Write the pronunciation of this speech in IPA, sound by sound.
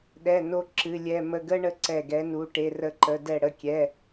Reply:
ɗ ɛ˧˥˧ n o˦˥ ǁ ɨ˧˥˧ lʲ ɛ˧˥˧ m ə˧˥˧ ɡ ə˦˥ ɳ ə˦˥ ǀ ɛ˥˨ ɡ ɛ˦˥ n u˧˥˧ ʈ e˧˥˧ r ə˦˥ ǃ ə˧˥˧ d ɛ˥˨ ɽ ə˧˥˧ kʲ ɛ˧˥˧

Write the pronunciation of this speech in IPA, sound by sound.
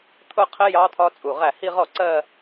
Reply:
t̪ʰ ʊ˥˧ qʰ ɪ˦˥ j ɑ˦˥ t̪ʰ ɒ˦˥ t͡sʼ u˧˩ ʁ æ˥˩ h i˥˧ ʁ ɔ˥˩ ǀ ɜ˥˧

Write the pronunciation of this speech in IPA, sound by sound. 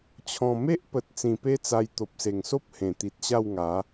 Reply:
t͡ɕʰ ɔ̃˨˩ m e˦ ʔ p ə˨ t̚ t͡s ĩ˨˩ p e˦ t͡s a˧ j t̪ o˨ p̚ s e˨˩ ŋ s o˦ p̚ h ẽ˨˩ t̪ i˨ t̚ ɕ a˥˧ w ŋ a˨˦

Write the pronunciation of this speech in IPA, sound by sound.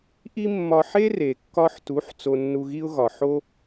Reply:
ʔ i˥ mː ɒ˧ ħ e˥ r e˩ kː ɒ˧ ħ t u˩˥ ħ t͡s o˧ nː u˧ ɣ i˥ ʊ̯ ɣ ɒ˩ ħ o˥

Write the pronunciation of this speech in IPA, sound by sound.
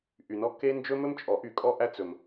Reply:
ʔ y˨ n ɔ˥ kː e˥ n d͡ʒ ɵ˥ m ɵ˥ m t͡ʃʼ ɔ˨˩˦ ʔ y˨˩˦ kʼ ɔ˥ ʔ æ˥ t͡s ɵ˨ m

